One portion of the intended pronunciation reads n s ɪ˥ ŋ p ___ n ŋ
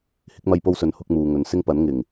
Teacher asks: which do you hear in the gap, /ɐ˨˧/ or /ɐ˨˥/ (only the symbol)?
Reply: ɐ˨˥